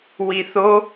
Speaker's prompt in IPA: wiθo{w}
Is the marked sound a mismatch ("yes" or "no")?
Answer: yes